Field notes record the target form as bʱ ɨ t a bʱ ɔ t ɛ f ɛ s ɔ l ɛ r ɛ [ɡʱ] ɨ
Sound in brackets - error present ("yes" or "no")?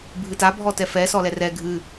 no